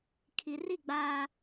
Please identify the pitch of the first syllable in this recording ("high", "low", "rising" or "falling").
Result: low